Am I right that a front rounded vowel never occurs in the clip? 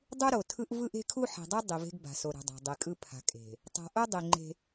yes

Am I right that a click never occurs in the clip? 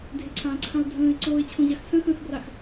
no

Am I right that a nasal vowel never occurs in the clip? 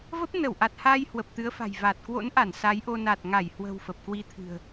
yes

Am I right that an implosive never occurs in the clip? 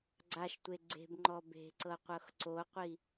yes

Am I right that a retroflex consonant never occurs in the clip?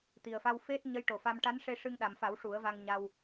no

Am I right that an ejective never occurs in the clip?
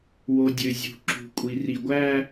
no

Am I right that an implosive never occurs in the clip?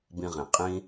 yes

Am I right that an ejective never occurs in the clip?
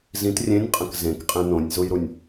no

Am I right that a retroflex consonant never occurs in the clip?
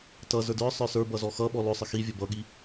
yes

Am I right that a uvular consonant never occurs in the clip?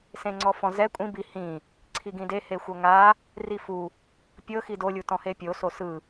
yes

